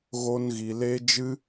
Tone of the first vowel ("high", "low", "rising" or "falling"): high